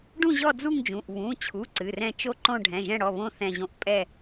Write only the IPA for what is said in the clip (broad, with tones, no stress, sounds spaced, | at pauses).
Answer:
ɖ ũ˥˧ ʑ ɔ˥˧ d͡z u˥˧ ŋ d͡ʒ ũ˩˧˩ ʔ β ũ˩˧˩ t͡ɕʰ u˩˧˩ ǀ ɨ˩˧˩ r ɛ̃˥˧ t͡ʃ o˥˧ ǃ õ˥˧ ɖʱ ɛ̃˩˧˩ ʒ ɛ̃˥˧ ɽ ɔ˩˧˩ β õ˥˧ θ ɛ̃˥˧ ʑ õ˥˧ ʔ pʼ ɛ˥˧